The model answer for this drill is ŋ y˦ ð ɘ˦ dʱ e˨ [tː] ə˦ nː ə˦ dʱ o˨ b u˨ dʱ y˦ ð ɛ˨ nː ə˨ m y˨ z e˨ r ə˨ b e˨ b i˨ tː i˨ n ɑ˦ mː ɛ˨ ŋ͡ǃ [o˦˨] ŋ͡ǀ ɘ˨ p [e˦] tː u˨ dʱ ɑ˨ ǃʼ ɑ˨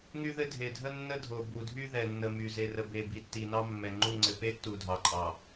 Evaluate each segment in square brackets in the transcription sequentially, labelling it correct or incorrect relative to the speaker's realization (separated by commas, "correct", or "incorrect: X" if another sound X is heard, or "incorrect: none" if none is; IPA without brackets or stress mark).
incorrect: dʱ, incorrect: u˦˨, correct